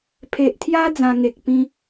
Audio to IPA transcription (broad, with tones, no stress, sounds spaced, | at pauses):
pʰ e˨ ʔ t̪ʰ j a˦ d͡z ã˧ ŋ e˨ k̚ p ĩ˦